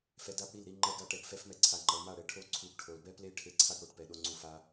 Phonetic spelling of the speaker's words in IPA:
f ɛ˧ d a˦ p ɽ i˦˨ l ɾ i˧ ŋ͡ǃ ɛ˦ ɡ a˦ ʈ ɛ˧ ɡ f ɛ˦ f m ɛ˦ ǀʰ a˧ ŋ͡ǃ ʌ˧ l m a˦˨ ɽ ɛ˧ ʈʰ o˦ ǀʰ u˧ ɡ ʈʰ o˨ l b ɛ˦ p l e˦ ʈʰ e˦˨ ǀʰ a˦ ɡ ɽ o˧ ʈ p ɛ˨ ɗ o˧ ŋ͡ǀ u˧ f a˧

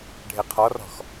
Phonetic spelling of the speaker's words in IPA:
ɖʱ e qʰ ɔ r ɔ̤ x

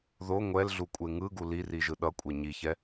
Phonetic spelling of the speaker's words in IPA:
ð o ŋʷ ɛ l ɮ u kʷʼ e ŋ ɯ ɡ u l i r i ʒ ɯ ɗ ʌ kʷʼ e ɲ i ç ɛ

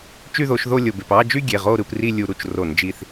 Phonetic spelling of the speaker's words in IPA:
t͡ʃ y˦˨ ð o˧˩˧ ʃ ð o˦˨ lʲ o˩ b e˩ p ɑ˦˨ d͡ʒ y˦˨ ɡʲ e˩˧˩ ʁ o˦˨ ɾ ɯ˩˧ p r i˦˨ lʲ u˧˩˧ ɾ u˩˧˩ t͡ʃ r o˧˩˧ n d͡ʒ i˦˨ θ

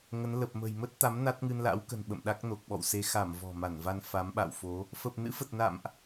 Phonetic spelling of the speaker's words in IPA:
ŋ ə˨˦ n l ə˨˩ p̚ m ə̤˨˩ j m ə˦˥ t̚ t̪ a˨˦ m n a˦˥ t̚ ŋ ɨ˧ n l a̰˧˥ w k ə̤˨˩ n ɓ ə̰˧˨ m ɗ a˦˥ k̚ n o˨˩ k̚ ɓ ɔ̰˧˨ w s e˧ x a˧˩ m v ɔ̤˨˩ m a˧˩ n v a˧ n f a˨˦ m ɓ a̰˧˨ w f o˨˦ | f ə˨˩ p̚ n ɨ̰˧˥ f ə˨˩ t̚ n a̰˧˨ m ʔ

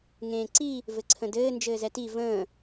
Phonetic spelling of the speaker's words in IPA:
ŋ ẽː ǀ i | v ɘ ǀʰ ə̃ d ɘː n d͡ʒ ɘː z ɛ t i v ə̃ː

